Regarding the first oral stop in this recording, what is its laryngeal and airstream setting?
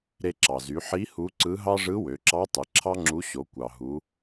click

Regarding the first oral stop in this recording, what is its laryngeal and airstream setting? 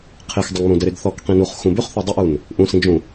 aspirated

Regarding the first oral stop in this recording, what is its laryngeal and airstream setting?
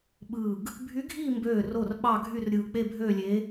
implosive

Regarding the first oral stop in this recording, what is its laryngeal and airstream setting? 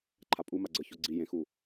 click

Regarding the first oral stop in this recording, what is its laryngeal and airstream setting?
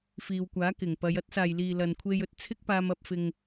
plain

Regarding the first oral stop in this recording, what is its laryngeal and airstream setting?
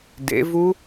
plain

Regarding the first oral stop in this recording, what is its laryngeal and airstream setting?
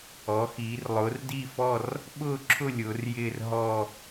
plain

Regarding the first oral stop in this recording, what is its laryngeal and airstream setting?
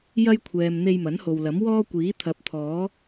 aspirated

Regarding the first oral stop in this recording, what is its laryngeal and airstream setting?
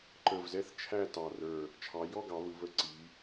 click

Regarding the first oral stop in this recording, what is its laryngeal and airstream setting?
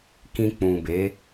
plain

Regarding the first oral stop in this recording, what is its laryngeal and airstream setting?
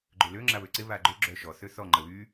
click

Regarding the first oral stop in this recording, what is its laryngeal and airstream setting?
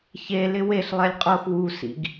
ejective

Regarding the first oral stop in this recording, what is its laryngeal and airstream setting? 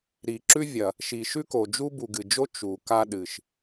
click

